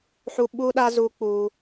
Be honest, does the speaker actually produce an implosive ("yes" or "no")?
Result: yes